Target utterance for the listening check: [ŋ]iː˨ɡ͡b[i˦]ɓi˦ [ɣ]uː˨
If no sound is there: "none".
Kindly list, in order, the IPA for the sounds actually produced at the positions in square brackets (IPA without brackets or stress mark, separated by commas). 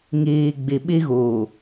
ŋ, i˨, ɣ